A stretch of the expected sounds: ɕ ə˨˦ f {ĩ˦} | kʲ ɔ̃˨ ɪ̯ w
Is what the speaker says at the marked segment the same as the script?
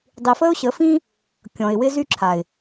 yes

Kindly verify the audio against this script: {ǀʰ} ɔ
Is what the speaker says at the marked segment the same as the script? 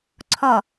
yes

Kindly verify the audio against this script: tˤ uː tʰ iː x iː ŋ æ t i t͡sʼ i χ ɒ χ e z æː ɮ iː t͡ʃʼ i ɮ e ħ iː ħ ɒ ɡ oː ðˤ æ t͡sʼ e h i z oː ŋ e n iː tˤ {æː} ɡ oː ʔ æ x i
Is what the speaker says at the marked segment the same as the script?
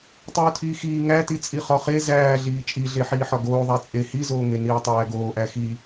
yes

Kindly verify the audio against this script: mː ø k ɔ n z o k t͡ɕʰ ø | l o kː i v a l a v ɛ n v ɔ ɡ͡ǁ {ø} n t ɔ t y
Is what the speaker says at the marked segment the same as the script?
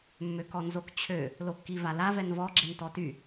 no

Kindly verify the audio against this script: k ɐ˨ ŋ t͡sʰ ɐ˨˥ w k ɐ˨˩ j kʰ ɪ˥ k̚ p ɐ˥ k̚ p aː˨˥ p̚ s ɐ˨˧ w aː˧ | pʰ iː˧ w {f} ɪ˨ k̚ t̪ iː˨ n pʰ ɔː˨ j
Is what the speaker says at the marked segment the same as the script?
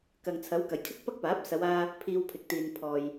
no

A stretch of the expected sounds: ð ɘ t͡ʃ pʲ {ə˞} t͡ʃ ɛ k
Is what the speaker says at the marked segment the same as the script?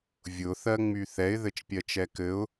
no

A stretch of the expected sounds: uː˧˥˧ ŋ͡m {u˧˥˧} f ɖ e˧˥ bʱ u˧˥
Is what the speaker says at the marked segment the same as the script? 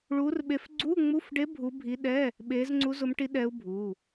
yes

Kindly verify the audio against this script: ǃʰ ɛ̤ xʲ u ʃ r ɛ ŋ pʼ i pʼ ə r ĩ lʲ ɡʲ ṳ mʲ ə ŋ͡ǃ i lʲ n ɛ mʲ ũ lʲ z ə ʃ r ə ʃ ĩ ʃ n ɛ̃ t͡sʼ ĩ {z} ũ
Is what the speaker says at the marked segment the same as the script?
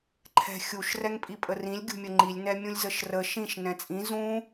yes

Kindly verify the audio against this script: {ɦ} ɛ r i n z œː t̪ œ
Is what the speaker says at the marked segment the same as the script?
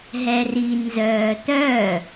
yes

